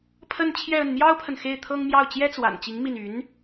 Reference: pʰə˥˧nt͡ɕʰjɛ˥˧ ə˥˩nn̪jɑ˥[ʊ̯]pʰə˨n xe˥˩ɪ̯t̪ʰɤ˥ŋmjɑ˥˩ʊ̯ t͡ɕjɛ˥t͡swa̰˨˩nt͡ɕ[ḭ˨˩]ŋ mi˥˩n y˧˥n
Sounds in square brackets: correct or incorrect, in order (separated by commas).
correct, incorrect